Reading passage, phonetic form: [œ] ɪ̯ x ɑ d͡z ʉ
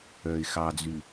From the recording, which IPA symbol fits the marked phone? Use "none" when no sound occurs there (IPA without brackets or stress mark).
œ